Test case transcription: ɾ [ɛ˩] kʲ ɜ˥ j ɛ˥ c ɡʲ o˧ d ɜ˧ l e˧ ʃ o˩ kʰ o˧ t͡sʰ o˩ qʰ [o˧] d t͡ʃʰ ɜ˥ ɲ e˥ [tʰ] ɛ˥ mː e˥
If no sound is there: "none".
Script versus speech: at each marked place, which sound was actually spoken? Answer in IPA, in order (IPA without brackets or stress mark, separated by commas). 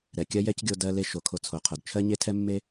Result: ɛ˩, o˩, tʰ